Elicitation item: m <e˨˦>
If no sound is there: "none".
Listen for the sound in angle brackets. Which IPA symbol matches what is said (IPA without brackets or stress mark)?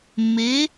e˨˦